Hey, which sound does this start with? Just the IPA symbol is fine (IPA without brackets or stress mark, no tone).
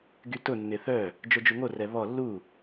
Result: ɡ